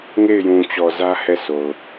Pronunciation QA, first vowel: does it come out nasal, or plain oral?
oral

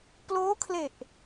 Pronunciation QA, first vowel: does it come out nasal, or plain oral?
oral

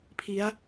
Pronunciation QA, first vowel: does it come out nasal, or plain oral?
oral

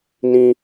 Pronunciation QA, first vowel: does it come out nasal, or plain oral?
nasal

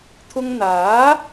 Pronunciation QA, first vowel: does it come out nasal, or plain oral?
oral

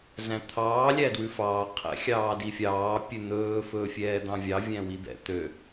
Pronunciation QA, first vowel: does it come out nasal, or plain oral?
nasal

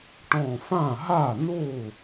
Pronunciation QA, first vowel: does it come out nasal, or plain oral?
nasal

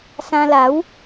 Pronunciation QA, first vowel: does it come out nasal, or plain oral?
nasal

